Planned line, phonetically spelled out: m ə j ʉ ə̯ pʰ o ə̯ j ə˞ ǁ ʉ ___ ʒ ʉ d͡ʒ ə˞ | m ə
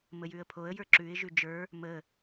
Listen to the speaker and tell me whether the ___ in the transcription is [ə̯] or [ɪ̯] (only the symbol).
ɪ̯